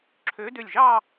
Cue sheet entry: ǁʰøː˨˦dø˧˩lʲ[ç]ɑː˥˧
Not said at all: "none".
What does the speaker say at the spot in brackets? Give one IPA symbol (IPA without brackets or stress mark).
ʒ